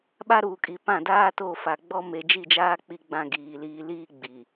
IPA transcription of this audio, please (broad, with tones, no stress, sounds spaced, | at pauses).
ɓ a˦ ɾ uː˨ kʼ i˨ p ã˦˨ d aː˦ t o˦˨ f a˨ ɡ͡b ɔ˦ m e˨ d͡ʒ i˦˨ d͡ʒ aː˦ k͡p i˦ ɡ͡b ã˦ ɡ iː˨ l iː˦ l iː˦ ɡ͡b i˨